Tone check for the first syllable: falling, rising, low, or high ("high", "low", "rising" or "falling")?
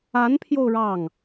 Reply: rising